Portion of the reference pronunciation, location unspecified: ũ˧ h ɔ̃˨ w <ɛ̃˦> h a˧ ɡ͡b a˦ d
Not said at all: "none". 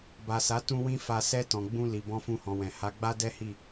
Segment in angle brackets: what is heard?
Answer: ɛ̃˨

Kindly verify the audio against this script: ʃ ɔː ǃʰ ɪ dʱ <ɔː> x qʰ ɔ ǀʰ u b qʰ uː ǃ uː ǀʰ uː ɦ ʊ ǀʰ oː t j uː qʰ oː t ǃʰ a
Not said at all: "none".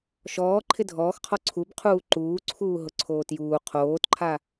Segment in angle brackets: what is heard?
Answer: ɔː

